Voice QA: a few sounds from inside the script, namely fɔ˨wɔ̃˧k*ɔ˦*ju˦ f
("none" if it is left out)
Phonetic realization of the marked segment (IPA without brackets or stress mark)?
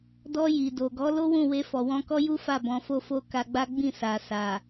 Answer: ɔ˦